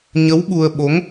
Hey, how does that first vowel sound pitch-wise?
rising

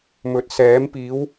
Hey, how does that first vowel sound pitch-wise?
rising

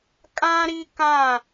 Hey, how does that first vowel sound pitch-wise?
high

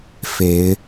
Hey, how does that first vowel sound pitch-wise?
rising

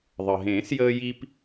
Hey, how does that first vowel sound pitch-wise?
low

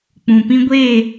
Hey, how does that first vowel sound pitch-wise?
low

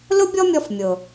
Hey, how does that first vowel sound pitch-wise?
high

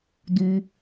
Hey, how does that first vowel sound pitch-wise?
high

